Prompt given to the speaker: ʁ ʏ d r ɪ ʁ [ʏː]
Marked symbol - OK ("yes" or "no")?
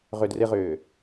yes